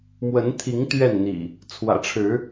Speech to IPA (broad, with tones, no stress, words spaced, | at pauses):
mwə˨˦nt̪ʰi˨˦ŋ t̪ɥɛ˥˨nn̪ḭ˨˩ | t͡sʰwä̰˨˩ʈ͡ʂʰɻ̩˨˦